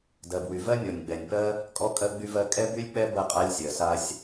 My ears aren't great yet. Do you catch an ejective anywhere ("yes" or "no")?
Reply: yes